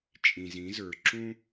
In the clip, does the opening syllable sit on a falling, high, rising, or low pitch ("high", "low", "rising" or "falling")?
low